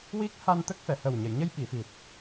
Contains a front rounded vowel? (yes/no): no